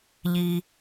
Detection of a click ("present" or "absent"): absent